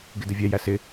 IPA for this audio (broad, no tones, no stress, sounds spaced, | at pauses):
ɡ ɪ d ɪ vʲ ɛ j æ s ɪ